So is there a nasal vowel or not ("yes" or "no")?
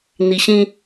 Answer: yes